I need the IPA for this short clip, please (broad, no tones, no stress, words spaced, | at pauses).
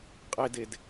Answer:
qʼeded